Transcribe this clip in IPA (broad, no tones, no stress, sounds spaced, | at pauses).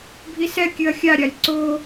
bʱ i s ɛ kʲ ɨ ɐ̯ xʲ a ɾʲ a lʲ ǀ o